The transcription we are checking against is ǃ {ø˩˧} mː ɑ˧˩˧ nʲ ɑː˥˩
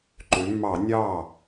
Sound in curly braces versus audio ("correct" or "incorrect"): correct